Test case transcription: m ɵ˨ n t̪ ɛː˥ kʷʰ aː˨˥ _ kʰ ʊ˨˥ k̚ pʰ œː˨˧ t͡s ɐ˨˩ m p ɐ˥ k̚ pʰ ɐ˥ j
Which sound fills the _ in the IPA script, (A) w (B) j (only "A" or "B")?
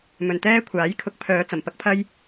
B